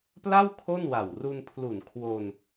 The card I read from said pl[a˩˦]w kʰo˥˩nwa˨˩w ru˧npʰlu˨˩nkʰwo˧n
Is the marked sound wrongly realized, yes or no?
yes